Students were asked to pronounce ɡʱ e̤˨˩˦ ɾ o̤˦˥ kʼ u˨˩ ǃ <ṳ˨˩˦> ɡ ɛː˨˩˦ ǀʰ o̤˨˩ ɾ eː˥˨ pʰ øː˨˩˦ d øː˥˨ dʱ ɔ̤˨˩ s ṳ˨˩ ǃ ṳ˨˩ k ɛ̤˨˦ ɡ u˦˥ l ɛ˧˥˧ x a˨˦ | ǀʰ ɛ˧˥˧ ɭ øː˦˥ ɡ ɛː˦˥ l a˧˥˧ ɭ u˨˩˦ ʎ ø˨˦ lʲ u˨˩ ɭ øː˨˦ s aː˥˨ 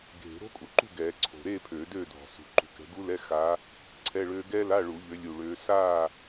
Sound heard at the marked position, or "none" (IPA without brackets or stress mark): ṳ˥˨